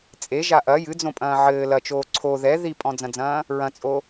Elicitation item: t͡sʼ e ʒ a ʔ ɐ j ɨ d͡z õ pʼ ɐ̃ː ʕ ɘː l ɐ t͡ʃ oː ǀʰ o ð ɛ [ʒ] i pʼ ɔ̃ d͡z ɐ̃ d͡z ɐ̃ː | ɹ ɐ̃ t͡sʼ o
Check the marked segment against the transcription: incorrect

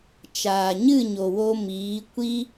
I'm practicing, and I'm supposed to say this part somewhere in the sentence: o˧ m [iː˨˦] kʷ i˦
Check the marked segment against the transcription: correct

